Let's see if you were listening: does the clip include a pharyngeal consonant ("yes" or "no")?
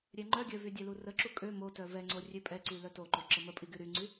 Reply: no